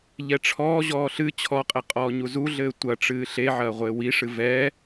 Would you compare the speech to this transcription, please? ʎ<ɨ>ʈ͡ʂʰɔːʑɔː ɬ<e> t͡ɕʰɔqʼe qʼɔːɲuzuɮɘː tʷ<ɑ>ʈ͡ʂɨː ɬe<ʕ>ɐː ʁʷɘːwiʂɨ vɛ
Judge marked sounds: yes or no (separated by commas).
no, no, no, yes